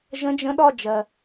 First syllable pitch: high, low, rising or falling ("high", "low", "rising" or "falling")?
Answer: rising